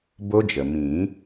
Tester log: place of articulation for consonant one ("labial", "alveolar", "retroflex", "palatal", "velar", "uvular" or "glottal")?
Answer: labial